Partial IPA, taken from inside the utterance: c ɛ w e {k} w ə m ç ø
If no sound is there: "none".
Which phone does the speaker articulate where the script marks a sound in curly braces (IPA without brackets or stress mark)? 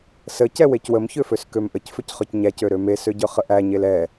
c